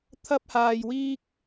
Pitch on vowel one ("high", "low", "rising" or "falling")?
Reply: high